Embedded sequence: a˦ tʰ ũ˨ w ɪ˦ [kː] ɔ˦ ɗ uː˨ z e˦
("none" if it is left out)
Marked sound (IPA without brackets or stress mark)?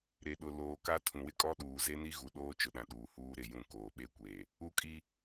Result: kʼ